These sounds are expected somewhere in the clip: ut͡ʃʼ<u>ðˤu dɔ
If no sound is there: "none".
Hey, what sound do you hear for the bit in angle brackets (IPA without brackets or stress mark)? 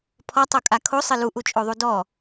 o